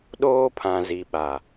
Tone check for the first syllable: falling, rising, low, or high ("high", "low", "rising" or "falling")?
high